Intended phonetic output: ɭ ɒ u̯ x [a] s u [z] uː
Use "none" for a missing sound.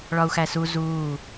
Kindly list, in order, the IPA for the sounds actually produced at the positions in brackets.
æ, z

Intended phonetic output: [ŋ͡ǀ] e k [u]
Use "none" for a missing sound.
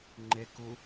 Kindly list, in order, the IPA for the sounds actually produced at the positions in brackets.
ŋ͡ǃ, u

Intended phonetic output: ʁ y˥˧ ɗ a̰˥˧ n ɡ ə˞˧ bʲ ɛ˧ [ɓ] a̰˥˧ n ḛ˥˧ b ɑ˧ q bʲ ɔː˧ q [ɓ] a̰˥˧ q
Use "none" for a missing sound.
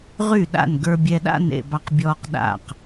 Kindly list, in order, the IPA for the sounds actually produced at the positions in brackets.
ɗ, ɗ

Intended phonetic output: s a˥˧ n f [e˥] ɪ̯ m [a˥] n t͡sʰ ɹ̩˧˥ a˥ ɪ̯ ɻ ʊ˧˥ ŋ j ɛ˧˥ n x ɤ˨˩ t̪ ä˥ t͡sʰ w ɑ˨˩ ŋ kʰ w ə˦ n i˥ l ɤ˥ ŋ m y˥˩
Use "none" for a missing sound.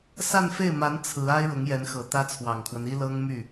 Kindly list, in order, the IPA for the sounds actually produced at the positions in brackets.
e˥˩, a˧˥

